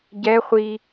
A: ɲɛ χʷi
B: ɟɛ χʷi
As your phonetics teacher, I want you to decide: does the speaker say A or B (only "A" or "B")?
B